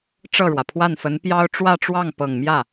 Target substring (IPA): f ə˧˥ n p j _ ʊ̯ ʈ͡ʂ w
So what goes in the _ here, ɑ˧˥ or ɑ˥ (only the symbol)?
ɑ˥